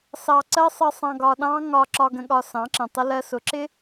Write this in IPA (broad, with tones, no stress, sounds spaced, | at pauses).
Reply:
s ɑ˧ ǀ ɜ˦ sˤ ə˧ sˤ ɑ̃˧ ɡ ɒ˧ ɗ ɑ̃˦ ŋ ɒ˧ ǁ ɒ˧ ɡ ə̃˧ ɠ ɒ˧ s ɑ̃˨˦ ǁ ə̃˨ tˤ ɪ˦ l ɜ˧ s ʊ˨˦ ǁ ɪ˦